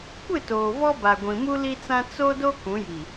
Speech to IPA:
kʷ ɪ˦˨ t oː˨ v ɔ˦ b a˨ ɡʷ ĩ˨ m u˦ l i˦ t͡s ã˦ t͡s o˦ d o˦ k ũ˨˦ j i˨

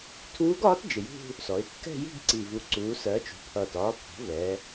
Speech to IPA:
tʰ uː˧˥ ɡ ɒː˧˥ t d͡ʒ ɪ˨˩ j ṳ˥˧ | s ɔ˩˧ ɪ̯ kː ɛ̤˥˧ j i̤˥˧ ɡ ǀ i˨˩ v u˨˩ ǀ uː˩˧ s ɜ˩˧ t͡ʃ ṳ˩˧ pʰ ʌː˨˩ t ɒː˩˧ pʰ ɔ̤˩˧ v ɛ˩˧

